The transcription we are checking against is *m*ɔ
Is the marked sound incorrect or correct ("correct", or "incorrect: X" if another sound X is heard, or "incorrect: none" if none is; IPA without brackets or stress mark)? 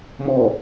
correct